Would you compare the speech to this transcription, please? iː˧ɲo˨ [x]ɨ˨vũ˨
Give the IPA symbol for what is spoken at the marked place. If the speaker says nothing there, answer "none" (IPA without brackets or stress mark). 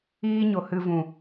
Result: h